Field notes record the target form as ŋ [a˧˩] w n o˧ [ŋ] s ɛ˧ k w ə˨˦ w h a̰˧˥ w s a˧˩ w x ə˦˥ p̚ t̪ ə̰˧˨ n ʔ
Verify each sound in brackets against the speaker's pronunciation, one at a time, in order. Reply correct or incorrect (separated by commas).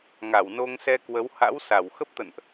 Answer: correct, correct